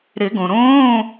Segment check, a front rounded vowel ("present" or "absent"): absent